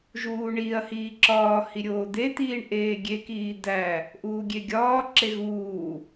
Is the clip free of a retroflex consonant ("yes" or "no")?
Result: no